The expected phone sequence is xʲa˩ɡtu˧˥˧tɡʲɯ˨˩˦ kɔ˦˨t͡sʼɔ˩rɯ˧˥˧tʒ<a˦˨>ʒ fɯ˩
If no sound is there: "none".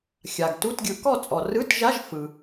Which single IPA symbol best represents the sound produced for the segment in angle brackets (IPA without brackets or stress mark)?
a˧˥˧